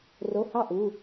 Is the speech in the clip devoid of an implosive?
yes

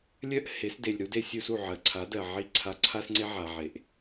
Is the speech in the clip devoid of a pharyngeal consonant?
no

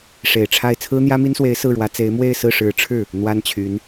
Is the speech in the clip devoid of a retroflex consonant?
no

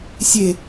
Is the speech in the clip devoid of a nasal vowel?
yes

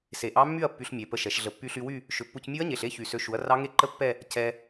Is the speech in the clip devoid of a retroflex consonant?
yes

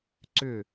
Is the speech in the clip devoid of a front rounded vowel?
no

